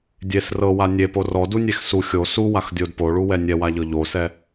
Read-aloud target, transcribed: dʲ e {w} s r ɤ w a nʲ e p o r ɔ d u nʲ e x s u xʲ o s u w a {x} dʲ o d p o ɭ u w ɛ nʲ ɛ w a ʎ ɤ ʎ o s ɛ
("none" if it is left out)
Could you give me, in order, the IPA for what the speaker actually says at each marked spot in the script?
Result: none, x

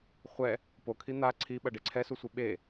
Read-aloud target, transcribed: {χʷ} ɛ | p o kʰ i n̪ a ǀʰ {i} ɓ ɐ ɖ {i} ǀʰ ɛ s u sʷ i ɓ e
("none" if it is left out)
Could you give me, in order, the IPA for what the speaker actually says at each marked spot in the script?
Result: χʷ, i, e

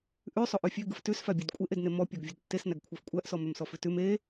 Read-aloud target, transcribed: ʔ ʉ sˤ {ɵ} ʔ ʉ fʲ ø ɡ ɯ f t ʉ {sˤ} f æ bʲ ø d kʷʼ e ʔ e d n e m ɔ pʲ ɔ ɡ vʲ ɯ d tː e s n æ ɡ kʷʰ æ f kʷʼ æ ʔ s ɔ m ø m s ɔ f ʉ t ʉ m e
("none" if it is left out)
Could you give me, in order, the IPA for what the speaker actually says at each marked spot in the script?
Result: o, s

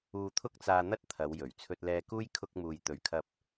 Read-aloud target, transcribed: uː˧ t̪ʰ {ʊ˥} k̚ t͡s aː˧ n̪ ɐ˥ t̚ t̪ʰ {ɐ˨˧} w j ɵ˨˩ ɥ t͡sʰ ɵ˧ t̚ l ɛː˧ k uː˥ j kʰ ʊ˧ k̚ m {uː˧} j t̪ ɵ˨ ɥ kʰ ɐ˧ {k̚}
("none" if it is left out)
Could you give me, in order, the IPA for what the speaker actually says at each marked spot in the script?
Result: ʊ˥, ɐ˨˧, uː˨, p̚

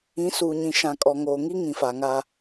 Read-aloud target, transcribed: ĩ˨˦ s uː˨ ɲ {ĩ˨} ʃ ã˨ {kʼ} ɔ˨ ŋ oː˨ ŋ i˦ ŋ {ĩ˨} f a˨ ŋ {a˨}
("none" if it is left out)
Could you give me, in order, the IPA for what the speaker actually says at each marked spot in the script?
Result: ĩ˨, kʼ, ĩ˨, a˦

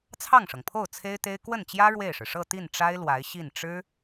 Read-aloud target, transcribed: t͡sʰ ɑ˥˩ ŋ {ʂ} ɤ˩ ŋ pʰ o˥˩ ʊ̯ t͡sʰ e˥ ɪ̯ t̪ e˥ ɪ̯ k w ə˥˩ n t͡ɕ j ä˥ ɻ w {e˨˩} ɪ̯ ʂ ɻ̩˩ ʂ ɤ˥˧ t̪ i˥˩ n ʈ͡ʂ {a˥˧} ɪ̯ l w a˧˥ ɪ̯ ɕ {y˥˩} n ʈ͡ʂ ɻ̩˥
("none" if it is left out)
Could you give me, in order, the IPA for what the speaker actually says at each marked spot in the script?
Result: ʂ, e˥˩, a˥, i˥˩

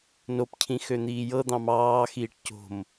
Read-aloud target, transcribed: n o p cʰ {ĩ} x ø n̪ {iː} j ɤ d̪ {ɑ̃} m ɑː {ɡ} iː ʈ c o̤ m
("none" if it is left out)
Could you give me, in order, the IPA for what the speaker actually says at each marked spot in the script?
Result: ĩ, iː, ɑ̃, x

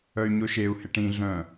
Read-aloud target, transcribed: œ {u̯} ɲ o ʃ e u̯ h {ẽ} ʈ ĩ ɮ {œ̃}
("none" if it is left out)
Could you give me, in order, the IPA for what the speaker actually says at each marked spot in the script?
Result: y̯, e, œ̃

